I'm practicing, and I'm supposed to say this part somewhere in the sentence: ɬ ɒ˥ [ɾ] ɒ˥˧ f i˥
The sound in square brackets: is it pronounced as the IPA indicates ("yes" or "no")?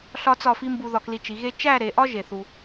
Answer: no